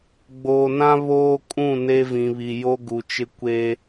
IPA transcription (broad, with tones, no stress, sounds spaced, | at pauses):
ɡ͡b oː˨ n ã˦ β oː˦ kʼ ũ˦˨ n e˦ v ĩ˨ β i˨ j o˦ ɡ u˨ t͡ʃ ɪ˦ kʷ e˦